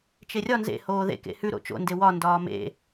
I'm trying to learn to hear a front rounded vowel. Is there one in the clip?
no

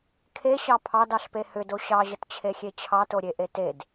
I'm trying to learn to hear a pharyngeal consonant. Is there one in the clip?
no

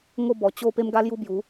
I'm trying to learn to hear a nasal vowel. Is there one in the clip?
no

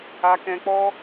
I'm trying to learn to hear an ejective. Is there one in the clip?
no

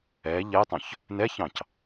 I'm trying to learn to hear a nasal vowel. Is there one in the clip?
yes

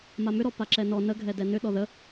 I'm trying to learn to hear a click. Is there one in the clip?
yes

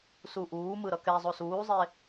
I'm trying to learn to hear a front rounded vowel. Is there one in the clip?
no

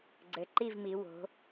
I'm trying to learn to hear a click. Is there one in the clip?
yes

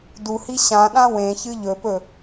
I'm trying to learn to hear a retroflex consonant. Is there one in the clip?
no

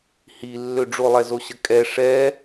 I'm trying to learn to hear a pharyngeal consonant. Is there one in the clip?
no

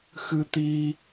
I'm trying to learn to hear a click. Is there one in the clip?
no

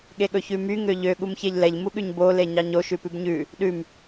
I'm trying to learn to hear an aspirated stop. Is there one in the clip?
no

